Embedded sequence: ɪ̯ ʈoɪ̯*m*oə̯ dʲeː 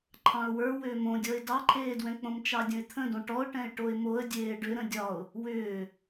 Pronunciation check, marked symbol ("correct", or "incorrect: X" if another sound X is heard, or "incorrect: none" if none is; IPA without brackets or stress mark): correct